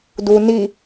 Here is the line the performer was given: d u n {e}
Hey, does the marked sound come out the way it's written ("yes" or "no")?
no